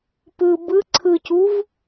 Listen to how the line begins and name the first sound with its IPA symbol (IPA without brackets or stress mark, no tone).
p